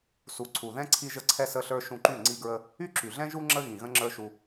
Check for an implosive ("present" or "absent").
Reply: absent